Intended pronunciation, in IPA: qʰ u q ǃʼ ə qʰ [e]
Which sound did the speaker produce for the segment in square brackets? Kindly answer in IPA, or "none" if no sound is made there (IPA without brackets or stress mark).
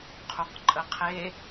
e